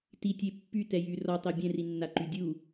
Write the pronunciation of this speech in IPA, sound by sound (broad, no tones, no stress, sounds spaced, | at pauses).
t i tʲ e pː y t ɛ j y r ɔ tˤ ɛ bʲ ɛ̃ r i nː a ǃ y dʲ u